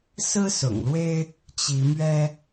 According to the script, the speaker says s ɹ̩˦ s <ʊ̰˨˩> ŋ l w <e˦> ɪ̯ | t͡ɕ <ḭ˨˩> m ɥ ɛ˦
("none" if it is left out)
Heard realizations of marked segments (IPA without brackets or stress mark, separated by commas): ʊ̰˨˩, e˦, i˨˦